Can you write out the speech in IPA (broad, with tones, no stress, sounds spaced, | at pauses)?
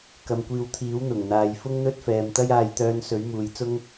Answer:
k ɐ˨ m kʷ iː˨˧ w t̪ʰ iː˨˥ w n̪ ʊ˨˩ ŋ n̪ aː˨˧ j f ʊ˥ ŋ n̪ ɵ˥ t̚ f ɛː˨ m t̪ ɐ˥ j aː˧ j t̪ œː˧ n s ɵ˨˥ ɥ m uː˨ j t͡s ʊ˥ ŋ